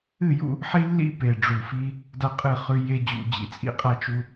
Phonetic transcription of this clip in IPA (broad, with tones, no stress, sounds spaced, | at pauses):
ɨ˦˨ j ṵ˦ | ħ i˦ lː ḭ˦ p e˨ ɖ͡ʐ u˨ f i˦ | d a˦ qʼ ɨ˦˨ χ ʉ˦ j e˦ d͡ʑ ṵ˨ d͡ʑ ḭ˨ t͡sʼ ḭ˦ qʼ a˦ t͡ʃ u˦